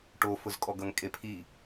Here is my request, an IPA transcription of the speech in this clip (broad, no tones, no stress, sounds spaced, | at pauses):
ʈ o f ʊ z kʼ ɔ ɡ ʌ ŋ kʼ e pʰ i